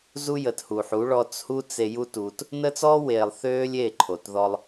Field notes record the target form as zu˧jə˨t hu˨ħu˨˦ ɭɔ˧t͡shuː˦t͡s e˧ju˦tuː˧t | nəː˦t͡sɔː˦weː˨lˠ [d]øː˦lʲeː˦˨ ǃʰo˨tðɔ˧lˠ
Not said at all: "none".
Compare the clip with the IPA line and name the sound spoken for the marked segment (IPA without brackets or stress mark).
θ